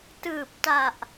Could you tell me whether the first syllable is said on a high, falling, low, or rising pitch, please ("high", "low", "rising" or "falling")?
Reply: low